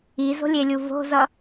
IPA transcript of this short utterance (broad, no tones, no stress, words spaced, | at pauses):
izo̤lʲelʲu vo̤zʌ